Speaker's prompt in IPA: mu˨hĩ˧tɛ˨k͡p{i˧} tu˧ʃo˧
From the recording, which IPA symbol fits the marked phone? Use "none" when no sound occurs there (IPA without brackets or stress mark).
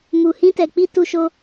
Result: i˧